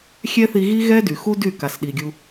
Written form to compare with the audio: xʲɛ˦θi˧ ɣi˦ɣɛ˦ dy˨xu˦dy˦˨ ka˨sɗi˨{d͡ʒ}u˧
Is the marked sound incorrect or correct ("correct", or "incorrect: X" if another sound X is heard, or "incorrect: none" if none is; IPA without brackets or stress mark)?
incorrect: ɡʲ